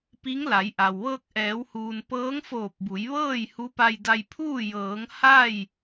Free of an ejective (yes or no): yes